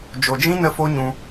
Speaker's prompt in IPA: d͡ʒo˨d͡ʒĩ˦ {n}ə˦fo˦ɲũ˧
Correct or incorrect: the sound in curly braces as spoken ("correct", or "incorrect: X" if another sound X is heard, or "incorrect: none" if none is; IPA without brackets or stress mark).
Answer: correct